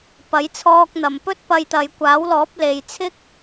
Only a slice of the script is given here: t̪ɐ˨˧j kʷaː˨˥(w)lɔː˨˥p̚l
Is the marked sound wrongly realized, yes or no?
no